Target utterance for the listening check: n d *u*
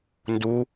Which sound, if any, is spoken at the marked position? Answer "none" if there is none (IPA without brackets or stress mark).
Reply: u